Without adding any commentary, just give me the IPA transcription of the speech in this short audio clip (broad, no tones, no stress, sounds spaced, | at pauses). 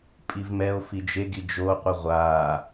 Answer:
pʼ i v m ɛ o̯ f i d͡ʒ e ɡ i d͡ʒ o qʷ ɯ ʁʷ aː